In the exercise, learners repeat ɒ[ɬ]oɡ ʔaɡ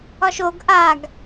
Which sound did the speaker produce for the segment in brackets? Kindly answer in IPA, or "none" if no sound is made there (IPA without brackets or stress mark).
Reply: ʃ